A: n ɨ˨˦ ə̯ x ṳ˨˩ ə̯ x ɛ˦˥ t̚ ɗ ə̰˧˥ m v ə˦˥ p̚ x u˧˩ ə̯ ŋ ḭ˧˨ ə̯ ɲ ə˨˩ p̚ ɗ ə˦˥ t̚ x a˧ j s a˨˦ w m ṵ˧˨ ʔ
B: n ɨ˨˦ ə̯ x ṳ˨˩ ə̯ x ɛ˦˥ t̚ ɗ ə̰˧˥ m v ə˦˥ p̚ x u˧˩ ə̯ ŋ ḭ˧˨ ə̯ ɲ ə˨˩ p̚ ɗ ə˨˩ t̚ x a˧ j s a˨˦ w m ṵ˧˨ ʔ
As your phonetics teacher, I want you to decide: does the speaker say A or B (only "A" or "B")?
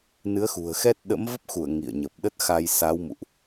A